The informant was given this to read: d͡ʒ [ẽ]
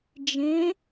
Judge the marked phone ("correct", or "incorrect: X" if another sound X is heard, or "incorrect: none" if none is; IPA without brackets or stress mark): correct